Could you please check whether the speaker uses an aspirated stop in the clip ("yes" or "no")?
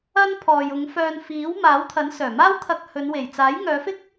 yes